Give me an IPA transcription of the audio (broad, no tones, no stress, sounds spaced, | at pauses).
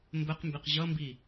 m b ə q m b ɪ q ʑ ʌ m b i